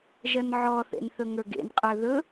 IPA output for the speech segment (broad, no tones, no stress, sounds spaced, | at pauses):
ʒ ɜ n ʕ ɔ θ ḛ n θ ɵ ŋ ə˞ ɡ ḛ n qʼ ə˞ ð ɵ